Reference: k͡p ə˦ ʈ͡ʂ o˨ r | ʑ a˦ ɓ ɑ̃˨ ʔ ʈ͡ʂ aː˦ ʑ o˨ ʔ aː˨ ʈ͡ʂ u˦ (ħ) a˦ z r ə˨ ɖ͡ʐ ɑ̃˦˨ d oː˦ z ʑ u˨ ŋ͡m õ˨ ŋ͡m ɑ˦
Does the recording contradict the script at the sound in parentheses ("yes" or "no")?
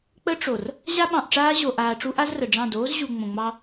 yes